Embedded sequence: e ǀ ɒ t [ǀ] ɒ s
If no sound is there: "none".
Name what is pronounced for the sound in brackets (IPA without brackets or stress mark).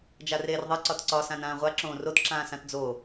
ǀ